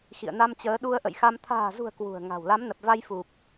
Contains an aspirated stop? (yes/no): yes